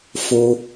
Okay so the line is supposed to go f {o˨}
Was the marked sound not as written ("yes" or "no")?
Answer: yes